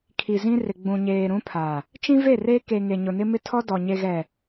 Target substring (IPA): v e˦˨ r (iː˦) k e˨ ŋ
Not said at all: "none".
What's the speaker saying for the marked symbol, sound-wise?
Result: eː˦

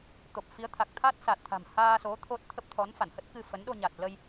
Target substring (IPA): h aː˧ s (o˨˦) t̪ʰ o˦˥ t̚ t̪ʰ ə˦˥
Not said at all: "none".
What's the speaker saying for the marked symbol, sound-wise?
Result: o˨˦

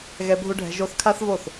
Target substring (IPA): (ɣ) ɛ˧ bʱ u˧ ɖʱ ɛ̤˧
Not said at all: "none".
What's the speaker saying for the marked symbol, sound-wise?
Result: ɣ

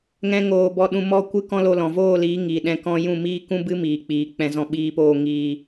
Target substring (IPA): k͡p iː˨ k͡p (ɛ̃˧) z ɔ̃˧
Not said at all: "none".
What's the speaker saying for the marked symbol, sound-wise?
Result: ɛ̃˧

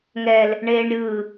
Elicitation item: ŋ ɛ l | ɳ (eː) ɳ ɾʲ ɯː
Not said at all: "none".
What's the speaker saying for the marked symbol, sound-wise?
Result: eː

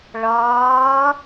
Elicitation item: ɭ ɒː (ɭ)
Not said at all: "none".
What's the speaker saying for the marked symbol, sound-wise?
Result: none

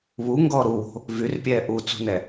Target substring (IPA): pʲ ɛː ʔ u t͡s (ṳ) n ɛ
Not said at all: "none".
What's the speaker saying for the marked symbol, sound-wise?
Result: ṳ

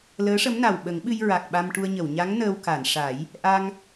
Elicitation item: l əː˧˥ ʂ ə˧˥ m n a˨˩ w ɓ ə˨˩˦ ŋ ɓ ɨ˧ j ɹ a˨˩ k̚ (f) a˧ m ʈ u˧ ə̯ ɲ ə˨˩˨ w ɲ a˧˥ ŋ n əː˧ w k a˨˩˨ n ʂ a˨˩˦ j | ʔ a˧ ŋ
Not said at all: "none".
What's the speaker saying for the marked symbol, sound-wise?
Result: ɓ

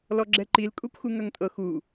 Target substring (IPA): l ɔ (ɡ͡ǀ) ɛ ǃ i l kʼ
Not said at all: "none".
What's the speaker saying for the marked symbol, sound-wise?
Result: ɡ͡ǁ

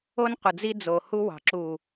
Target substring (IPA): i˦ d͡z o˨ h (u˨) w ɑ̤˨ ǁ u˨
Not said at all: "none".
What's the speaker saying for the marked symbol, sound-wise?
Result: u˦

